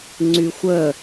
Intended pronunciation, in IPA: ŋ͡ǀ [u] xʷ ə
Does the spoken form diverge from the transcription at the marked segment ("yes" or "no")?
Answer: yes